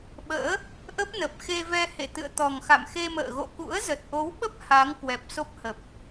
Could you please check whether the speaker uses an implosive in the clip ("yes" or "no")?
yes